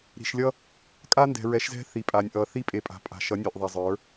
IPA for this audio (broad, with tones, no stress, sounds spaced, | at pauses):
ɾ i̤˨ ʃ lʲ ʌ˦ | kʼ a˦ n d ɛ̤˨ ɹ ɛ˨˦ ʃ z ɛ̤˦ θ i˨ pʼ a˨ nʲ ʔ ʌ˨ θ i˦ pʼ e˨ pʼ a̤˨ pʼ a̤˨ ʃ ʌ˨˦ nʲ e˨ ʔ ðˤ a˨ zˤ ə˞˨˦